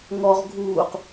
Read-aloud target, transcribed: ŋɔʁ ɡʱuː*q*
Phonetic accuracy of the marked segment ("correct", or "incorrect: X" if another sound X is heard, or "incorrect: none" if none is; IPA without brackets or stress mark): correct